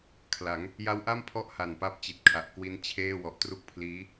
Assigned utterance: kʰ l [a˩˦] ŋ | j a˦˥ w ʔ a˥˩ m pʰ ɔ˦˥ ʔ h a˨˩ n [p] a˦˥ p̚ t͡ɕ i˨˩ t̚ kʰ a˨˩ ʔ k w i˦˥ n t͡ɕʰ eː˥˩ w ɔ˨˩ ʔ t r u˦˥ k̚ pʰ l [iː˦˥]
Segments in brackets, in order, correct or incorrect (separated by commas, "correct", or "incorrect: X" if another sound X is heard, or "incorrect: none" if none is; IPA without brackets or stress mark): correct, correct, correct